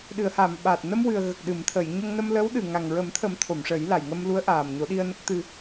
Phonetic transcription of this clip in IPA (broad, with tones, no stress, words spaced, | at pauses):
ɗɨ˨˩˨ə̯ha˨˩˨m ɓa˨˩t̚ nə˧mwɨ˨˩ə̯ ɣə˨˩k̚ɗɨ˨˩˨m t̪ʰə˨˩˨jɲə˧ŋnə˧m lə˧˥wɗɨ˨˩ ŋa˨˩ŋɹə˨˩˦mt̪ʰə˨˩˦m t̪ʰo˨˩˨mʂə˨˩˦jla˨˩jŋə˧m lu˧˥ə̯ʔaː˨˩mɲo˨˩˦ɗi˧ə̯ nə˦˥k̚t̪ɨ˧